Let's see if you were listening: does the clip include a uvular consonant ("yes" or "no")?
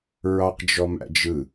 yes